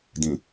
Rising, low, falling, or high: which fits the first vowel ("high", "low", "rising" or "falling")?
low